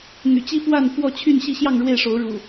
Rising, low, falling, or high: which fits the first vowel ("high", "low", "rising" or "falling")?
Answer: low